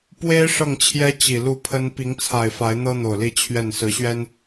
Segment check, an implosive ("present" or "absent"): absent